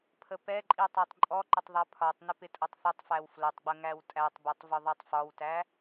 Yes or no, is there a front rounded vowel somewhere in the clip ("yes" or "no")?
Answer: no